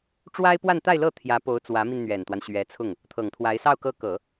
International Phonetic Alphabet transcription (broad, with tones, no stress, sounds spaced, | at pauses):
ʈ͡ʂ w a˥ ɪ̯ p w a˥˧ n t̪ a˥˧ ɪ̯ l ɤ˥˩ t̪ʰ j ä˧˥ p o˧˥ ʊ̯ t͡s w ä˧˥ m i˧ n n̪ ɥ ɛ˨˩ n t̪ w a˦ n ɕ ɥ ɛ˧˥ t͡sʰ ʊ˥˩ ŋ | t̪ʰ ɤ˨˩ ŋ t̪ʰ w a˧˥ ɪ̯ s ɑ˥˩ ʊ̯ k ɤ˥ k ɤ˨˩˦